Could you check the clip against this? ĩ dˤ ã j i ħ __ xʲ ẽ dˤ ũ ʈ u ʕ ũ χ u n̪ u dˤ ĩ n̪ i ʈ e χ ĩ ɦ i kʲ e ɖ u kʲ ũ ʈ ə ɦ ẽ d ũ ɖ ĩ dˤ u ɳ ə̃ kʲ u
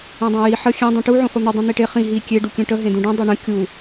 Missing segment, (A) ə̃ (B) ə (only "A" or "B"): B